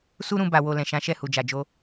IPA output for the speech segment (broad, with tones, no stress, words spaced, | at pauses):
su˦ɾũ˧ ba˨wo˨ lɛ̃˨ʃã˨˦ ʃɛ˦˨hu˨d͡ʒa˨d͡ʒo˧